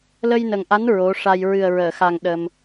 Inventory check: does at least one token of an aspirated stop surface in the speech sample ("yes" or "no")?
no